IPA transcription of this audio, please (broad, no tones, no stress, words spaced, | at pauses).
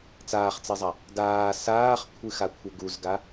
t͡saːχt͡sɛzˤa | daː saːχkʷʰɨxakʷʰɘ ɡuzɡa